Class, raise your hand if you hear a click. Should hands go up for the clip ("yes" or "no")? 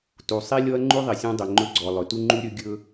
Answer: yes